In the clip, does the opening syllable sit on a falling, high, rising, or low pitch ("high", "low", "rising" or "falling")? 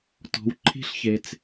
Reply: low